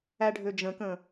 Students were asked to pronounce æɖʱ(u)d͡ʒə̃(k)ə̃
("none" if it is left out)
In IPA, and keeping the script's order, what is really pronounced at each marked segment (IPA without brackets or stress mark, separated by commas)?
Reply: ø, k